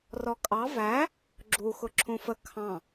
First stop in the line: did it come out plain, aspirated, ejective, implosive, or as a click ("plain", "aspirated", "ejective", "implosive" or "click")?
ejective